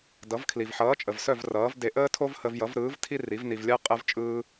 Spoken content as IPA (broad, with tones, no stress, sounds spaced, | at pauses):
d ʌ˩˥ v kʰ l i˩ v ħ ʌː˩˥ t͡ʃʼ ə˩ v s œ˥˩ v r ʌː˩˥ v d e˧ ʔ əː˥ tʰ o˥ v h ə˧ v j ʌ˩˥ v ɾ ɯː˩˥ v tʰ i˥ r i˩˥ v n i˧ v lʲ ɜ˥ qʼ ə˧ v t͡ʃʼ ɯː˧